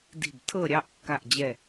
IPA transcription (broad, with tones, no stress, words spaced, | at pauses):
di̤˧˩b tʰɤ˥˨ɾʲɑ˥˨ʔkːa˧˩ʔd͡ʑɛ˧˩